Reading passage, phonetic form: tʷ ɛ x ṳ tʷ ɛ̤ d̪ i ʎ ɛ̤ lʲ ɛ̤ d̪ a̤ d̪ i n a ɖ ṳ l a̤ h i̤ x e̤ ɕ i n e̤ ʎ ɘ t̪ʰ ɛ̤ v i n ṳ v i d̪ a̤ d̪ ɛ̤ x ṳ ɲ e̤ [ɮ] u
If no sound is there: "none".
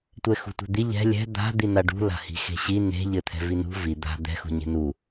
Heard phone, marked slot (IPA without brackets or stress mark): n